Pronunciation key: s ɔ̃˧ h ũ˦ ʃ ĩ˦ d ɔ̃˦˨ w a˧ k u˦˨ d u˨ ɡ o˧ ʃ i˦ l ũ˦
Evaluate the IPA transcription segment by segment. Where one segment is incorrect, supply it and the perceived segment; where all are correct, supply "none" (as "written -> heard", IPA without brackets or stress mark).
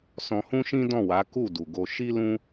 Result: a˧ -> a˨˦